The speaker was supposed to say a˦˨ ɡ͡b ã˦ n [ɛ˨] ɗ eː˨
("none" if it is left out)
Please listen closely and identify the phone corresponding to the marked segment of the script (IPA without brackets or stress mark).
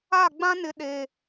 ɪ˨